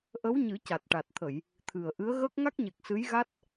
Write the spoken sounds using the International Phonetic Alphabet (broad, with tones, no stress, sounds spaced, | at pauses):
ʔ ə˧˥ w ɲ ɨ˨˩˦ c a˨˩ t̚ ʈ a˨˩ t̚ t̪ʰ ə˨˩˨ j | t̪ʰ ɨ˨˩ ə̯ ʔ ɨ˧˥ ə̯ ɣ əː˦˥ k̚ ŋ a˦˥ k̚ ɲ e˨˩ k̚ s ɨ˧˥ j ɣ a˦˥ t̚